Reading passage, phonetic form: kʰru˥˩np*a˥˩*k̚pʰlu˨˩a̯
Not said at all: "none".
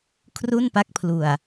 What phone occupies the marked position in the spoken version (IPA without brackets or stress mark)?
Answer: a˦˥